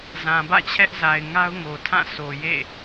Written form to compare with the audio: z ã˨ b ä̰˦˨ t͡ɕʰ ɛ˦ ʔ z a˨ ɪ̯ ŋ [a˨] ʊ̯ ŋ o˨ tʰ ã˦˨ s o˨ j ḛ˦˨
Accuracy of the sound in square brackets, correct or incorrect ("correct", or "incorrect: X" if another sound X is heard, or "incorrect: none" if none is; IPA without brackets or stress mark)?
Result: incorrect: a˦